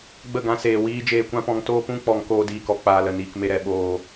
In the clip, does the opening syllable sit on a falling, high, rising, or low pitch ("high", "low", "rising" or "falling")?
falling